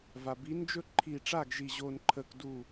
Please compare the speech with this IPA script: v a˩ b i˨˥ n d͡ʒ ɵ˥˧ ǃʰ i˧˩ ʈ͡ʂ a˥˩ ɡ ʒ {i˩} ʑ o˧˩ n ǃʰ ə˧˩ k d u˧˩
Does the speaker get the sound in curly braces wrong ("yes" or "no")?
yes